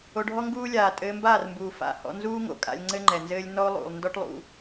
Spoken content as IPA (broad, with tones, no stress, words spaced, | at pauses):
o˧ɖʱɔ˦ŋɡuː˦lʲaː˨ tʼɘː˧mbaː˦˨rmbuː˨ fa̰˨˦hɔ̰˧ nzuː˦ŋo̰˨ kʼa̰˧lʲŋ͡ǀɘ˦ŋ͡ǃɛ˨nzɘː˦lʲ nɔ˦o̯lˠṵ˨lˠ ndɔ˦ʈlˠṵ˧